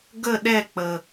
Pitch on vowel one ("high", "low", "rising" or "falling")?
falling